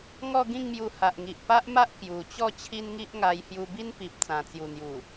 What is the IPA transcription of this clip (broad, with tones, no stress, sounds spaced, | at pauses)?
ŋ ɔ˥˧ ɡ ĩ˥˧ ŋ m j u˧ h a˨ ʔ ŋ i˨ ʔ p a˦ ʔ m a˦ ʔ k j u˨˩ t͡ɕ ɔ˥˧ t͡ɕʰ i˦ n ŋ i˦ ʔ ŋ a˧ j h j u˧ b i˦ n p i˨ p̚ t͡s ã˨˩ t͡s j u˨˩ n̪ j u˨˩